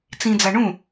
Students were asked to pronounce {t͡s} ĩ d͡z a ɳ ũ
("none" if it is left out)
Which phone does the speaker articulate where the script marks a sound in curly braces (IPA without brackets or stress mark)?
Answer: t͡s